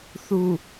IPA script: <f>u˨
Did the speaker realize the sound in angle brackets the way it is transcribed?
no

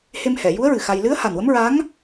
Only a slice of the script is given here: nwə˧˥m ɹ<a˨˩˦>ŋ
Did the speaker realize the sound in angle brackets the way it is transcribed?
no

